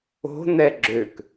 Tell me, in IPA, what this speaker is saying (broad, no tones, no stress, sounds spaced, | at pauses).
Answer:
o̤ n̪ ɛ ɡ͡ǁ ø k